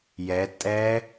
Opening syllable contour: rising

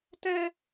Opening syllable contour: high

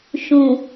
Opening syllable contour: low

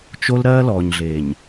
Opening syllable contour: high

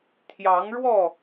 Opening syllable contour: rising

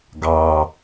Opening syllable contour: low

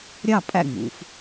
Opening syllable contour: falling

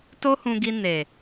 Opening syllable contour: high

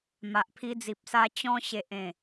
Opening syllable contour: low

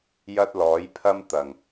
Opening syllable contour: high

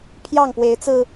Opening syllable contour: falling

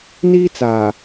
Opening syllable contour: high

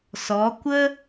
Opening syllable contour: rising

